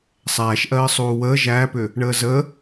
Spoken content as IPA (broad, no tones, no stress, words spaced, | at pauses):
sˤæːʃʔɜː sˤuːwəː ʒæːpʏ | ɳəːzə